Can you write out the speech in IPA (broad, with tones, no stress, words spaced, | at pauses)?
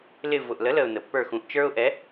lɪ˦˨ vʊ˨˩ʔlə˨˥lə˨˩ʊ̯ nə˨˩pːə˞˦˨ xũ˨˩ʔt͡ʃə˞˦ʊ̯ʔɛ˨˥